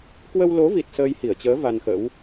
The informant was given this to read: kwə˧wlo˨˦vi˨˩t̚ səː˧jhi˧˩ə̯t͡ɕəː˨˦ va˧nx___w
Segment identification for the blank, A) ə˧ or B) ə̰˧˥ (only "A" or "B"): B